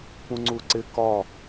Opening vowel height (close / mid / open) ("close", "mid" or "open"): close